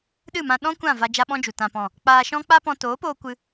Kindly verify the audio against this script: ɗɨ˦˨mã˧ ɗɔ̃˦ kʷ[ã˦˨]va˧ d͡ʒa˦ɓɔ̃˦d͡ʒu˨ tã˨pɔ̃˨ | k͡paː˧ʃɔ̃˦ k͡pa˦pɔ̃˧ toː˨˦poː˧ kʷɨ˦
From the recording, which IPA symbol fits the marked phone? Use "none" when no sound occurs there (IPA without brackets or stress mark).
ã˦˨